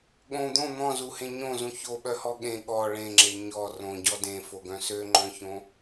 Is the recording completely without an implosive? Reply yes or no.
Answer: no